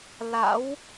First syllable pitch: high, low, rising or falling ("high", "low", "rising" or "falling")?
rising